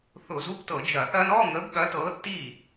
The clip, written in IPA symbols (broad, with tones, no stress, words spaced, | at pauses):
θʊ˧˩˧zu˧˥˧btɤ˧˩˧ d͡ʒɐ˧˩˧θɐ˥n ɔ˧˥˧ŋə˨˥b ɠɐ˨˥tɤ˨˥tːi˥˩